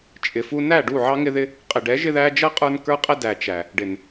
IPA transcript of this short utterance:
t͡ʃʼ ɪ˨ f u˧ n æ˦˨ ɖ u˦˨ ʕ ɑ˦ ŋ ɪ˦ ð ɪ˦ | qʼ ɪ˨ ɖ ɛ˨˦ ʒ ɪ˧ ð æ˧ d͡ʒ ʌ˦ qʼ ə˞˦ n k ə˞˦ qʼ ɛ˦ d æ˨ t͡ʃ æ˨ | ɖ ɪ˨ n

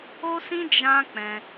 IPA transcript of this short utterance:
o˦ s ĩ˦ d͡ʒ ã˦ k͡p ɛ̃˧

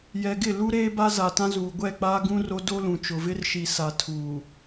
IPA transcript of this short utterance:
j ɛ˨ ɡ ɪ˦˨ l u˦ ɾ eː˦ b a˦ z a˨ t ã˦ z uː˨ ɡʷ ɛ˦˨ k͡p aː˦ ɡ ũ˦ r o˦ d o˦ l ũ˨ t͡ʃ ʊ˨ v ɪ˦ r ʃ i˨ s a˨ tʰ uː˨

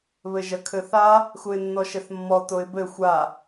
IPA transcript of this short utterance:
β ɘ ʒ ɐ kʰ ɘ θ a | x u ɪ̯ nː ɔ ʃ ɛ θ mː ɔ t o ɪ̯ b ɘ xʷ a

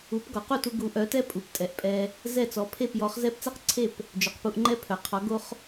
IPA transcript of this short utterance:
u˩˥ p ɡ ɔ˩ q u˥˩ t u˧ ɡ u˩˥ ʔ œ˩˥ t ɛ˥ pʼ u˩ p tʼ ɛ˩ ʔ pʼ ɛ˧ | z ɛ˥˩ t͡s ɔ˩˥ pʰ e˥˩ p j ɔ˩˥ χ z ɛ˥ p t͡s ɛ˥ q ǀʰ e˥˩ p | d͡ʒ œ˩ q p u˧ ʔ ŋ͡ǃ ɛ˥ pʰ œ˩ qʰ ɔ˩˥ ɡ o˥ χ

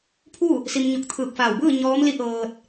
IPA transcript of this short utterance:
pʰ u˥˨ | s i˧ m ɲ o˧ k̚ t̪ʰ ɯː˧˩ k̚ f aː˧˩ w b ɯː˥˨ ɲ ɔː˧˥ m l i˧˥ ʔ ɤː˧ t̚

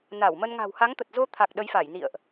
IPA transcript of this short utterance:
n a˧˩ w m ə˧ n ŋ a̤˨˩ w h a˨˦ ŋ t̪ ə˨˩ t̚ z o˧ t̪ʰ a˨˩ k̚ ɗ ə˨˦ j f a˧˩ j n ḭ˧˨ ə̯ ʔ

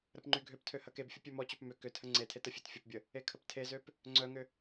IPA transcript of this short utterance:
ɾ ə p ŋ͡ǃ y ɡʱ ø p tʰ ø h ɐ k e b fʲ ʊ pʲ ø m ɔ t͡ɕ ø p m ʏ k ʏ tʰ ə ŋ͡ǀ e tʰ e t ə fʲ e t fʲ ʊ p bʲ ə | e kʰ ə p tʰ e z ø p | ŋ͡ǀ œ ŋ ʏ

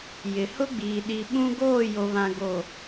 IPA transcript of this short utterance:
j ɪ˨ h ʊ˦ ɡ͡b iː˨ ɗ i˨ ɓ ũ˦ ɡ oː˦˨ j o˨ β ã˨ ɡ o˨

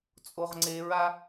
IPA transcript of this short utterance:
t͡sʼ o ʁ ŋ͡ǀ e ɹ a

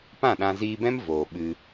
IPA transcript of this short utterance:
p ã˦˨ ɗ ã˧ z iː˧ b ɛ̃˦ m v oː˨ ɓ ɨ˧

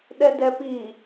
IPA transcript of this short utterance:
ɗ ɛ d ɛ p i

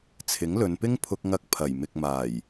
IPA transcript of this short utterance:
t͡sʰ ɪ˨˥ ŋ l ɵ˨˧ n p ɪ˥ ŋ pʰ ʊ˧ k̚ ŋ ɐ˧ k̚ pʰ ɐ˨˩ j m ɪ˨ k̚ m aː˨˩ j

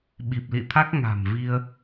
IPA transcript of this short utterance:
ɓ i˨˩ p̚ l ḭ˧˨ t̪ʰ a˦˥ k̚ ŋ a̤˨˩ m v i˧ ə̯

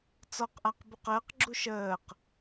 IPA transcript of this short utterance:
t͡s ɔ q ʔ a q b u q əː q ɡ͡ǁ u ʃ əː q

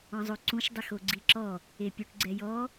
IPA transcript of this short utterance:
ɔ̃ zˤ o ǀ ũ ʃ dˤ ɛ x o ɡ͡ǀ i ǁ ɔ | e pʲ u ʈ ɡ͡ǀ ɛ j ɔ

